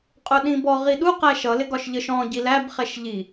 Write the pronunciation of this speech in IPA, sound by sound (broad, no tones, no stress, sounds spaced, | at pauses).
qʼ ʊ ɗ ĩ b ɔ ʁ i ɗ u q æ ʃ ʌ l ɪ ɡ ɒ ʃ ʎ ə ʃ ɔ̃ ɟ i l æ b χ ɛ ʃ ʎ i